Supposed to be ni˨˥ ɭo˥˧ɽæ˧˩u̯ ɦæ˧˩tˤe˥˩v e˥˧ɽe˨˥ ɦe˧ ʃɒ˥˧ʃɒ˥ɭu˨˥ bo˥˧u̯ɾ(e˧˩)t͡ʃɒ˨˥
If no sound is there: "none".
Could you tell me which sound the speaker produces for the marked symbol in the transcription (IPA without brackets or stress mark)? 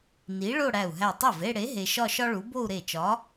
e˧˩